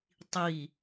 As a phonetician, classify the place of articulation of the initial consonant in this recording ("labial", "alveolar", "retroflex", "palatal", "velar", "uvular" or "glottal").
alveolar